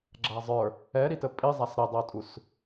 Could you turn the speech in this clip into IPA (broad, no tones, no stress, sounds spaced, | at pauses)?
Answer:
ɡ͡ǁ a zˤ ə˞ | ɛ ɾ i t ə pʼ i zˤ a s ɾ ə dˤ o tʼ u s